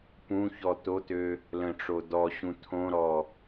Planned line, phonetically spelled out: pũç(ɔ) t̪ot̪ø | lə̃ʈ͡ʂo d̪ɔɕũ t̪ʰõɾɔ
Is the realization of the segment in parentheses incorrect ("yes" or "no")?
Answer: no